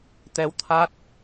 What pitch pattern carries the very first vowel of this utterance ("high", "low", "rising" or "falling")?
rising